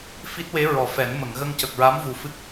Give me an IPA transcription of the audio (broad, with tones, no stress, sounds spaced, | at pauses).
f i˦˥ t̚ w e˧˥ ɹ ɔ˨˩˨ f ɛ˨˩˦ n m ə˨˩˨ ŋ ɣ ə˧ ŋ c ə˨˩ k̚ ɹ a˧˥ m v u˨˩ f ɨ˦˥ k̚